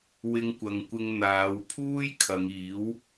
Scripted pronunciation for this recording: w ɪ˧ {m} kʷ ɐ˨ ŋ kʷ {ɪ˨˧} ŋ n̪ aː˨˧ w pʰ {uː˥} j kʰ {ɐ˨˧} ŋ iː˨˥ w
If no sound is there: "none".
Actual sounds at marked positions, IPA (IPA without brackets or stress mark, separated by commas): ŋ, ɪ˧, uː˥, ɐ˨˧